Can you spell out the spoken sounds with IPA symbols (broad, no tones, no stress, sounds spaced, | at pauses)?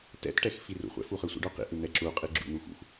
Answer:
t ɛ̰ t ʈ ɛ x f i r ṵ χʷ ɛ̰ f u χ ɯ sʷ ḭ ɖ o q ḭ ʔ ɯ n̪ ɛ ǁ u qʼ i ɡ͡ǁ ṵ n̪ u x ṵ x